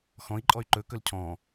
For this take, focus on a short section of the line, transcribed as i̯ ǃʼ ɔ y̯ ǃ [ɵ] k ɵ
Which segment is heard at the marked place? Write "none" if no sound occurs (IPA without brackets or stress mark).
ɵ